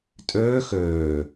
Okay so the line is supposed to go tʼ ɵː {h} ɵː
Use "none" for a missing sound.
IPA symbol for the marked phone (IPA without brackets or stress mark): x